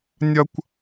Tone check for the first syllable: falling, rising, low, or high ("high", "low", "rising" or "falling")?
high